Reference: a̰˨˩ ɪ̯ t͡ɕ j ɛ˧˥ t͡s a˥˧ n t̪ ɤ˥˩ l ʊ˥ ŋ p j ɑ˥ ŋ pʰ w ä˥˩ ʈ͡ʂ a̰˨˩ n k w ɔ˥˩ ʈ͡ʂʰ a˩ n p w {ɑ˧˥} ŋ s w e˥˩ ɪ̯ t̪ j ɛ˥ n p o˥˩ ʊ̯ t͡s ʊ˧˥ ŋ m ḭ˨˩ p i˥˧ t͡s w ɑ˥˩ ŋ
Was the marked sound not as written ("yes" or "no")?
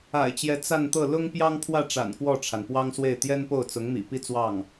yes